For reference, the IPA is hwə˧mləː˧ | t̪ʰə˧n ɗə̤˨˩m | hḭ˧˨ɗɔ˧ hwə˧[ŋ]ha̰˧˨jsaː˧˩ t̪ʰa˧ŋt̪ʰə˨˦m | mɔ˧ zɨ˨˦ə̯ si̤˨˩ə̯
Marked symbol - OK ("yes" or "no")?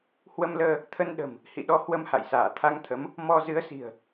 no